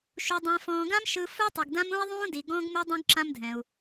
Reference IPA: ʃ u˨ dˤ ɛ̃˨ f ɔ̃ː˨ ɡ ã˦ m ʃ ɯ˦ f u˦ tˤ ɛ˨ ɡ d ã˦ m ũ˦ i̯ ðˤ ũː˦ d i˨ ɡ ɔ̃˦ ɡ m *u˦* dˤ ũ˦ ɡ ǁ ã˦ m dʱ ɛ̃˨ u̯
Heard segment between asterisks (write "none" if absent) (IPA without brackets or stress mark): u˦